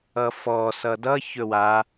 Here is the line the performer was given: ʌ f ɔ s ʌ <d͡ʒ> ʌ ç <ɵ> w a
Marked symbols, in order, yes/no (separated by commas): no, yes